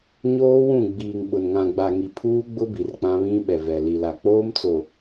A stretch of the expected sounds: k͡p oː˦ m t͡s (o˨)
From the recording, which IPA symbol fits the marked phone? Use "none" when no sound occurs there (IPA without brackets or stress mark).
o˨